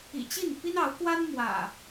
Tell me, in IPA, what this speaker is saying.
ḭ˨˩ t͡ɕi˥˨npi˦nɑ˨˦ʊ̯kwa˦n mwä̰˨˩

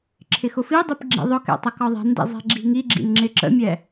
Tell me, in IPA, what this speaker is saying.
ǁʰɪxʊfidˤip ɡ͡ǁḭðˤʊkɛ̰ tˤəkɒðˤɛ̤ndḭ zˤɛ̤ɡ͡ǁi̤ŋiɡ͡ǁḭn ŋ͡ǁɪǁə̰mʲɛ

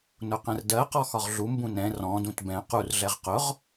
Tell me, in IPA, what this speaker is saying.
nʊqɛ̃rdɜqɔ xɒʁɮumbũ nɛ̃ rɔ̃dũt bɛ̃ qurɮɛʁ qʊʁ

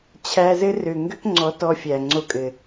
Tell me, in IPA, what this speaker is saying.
t͡ɕʰæ˧zɘ˦rø˨ ŋɡø˦kŋ͡ǀɔ˨˦ tɔ˧fʲæ˨ŋ͡ǀo˧kʼɘ˨

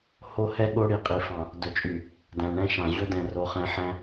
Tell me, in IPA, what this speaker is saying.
ho˦hɛ˦ ɠo˦ɽi˨ qʼi˨fɑ̃˨ | dɵ˨t͡ʃʼy˨ | dæ̃˨ɳɛ̃˦ʃɑ̃˨ ʑɵ˦dɛ̃˨ ro˨χɛ̃˨˦ ħæ̃˦

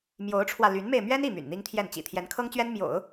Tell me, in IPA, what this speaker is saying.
mjo˧˥ʊ̯ʈ͡ʂʰwä˧ ly˧˥nme˧ɪ̯ mɥɛ˥n i˥˩ my̰˨˩nn̪i˥ŋt̪ʰjɛ˥˩n t͡ɕḭ˨˩ t̪ʰjɛ˧˥nkʰɤ˥ŋt͡ɕɥɛ˥n mjo̰˨˩˦ʊ̯

